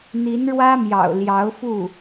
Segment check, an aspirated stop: absent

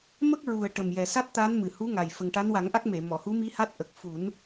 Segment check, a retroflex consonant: present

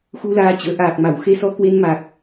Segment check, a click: absent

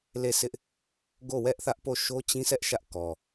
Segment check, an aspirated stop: absent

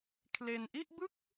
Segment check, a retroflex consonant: absent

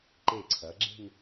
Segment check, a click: present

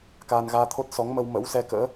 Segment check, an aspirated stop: present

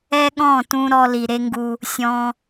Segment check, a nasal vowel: present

